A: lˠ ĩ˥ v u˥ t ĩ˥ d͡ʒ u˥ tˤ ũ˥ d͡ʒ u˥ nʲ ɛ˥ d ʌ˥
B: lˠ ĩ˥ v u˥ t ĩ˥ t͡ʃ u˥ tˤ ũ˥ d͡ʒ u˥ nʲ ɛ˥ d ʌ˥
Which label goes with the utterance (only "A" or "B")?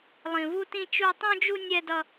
B